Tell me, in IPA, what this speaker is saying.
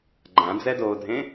ɡ͡ǃ ã d͡z ɛ d oː dʱ ẽ

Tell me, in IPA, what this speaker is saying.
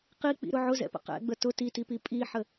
q i k͡p ḭ ɾ ʊ ʕ ʊ z ɛ̰ p ə̰ q ɛ̰ ɡ͡b ə t ʊ t i t i p i pʼ i ħ ə

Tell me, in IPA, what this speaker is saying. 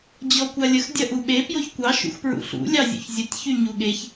d͡ʑ ɔ kʷ a lʲ ə x dʲ ɐ ʔ u ɓ e p j o ç kʷ ɑ ʃ ṵ x p ɹ ṵ ɬ ṵ lʲ ɑ zʲ ṵ ç zʲ ə tʲ ç y ɲ u ɠ e ç

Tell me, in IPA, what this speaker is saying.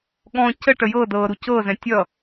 ɠ ɔ̃ c ə ʈ ə j ɤ d ɤ ɾ u c ɤ z ɛ̃ tʲ ʌ

